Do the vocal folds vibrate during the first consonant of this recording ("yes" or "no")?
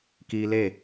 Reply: no